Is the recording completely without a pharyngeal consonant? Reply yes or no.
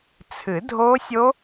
yes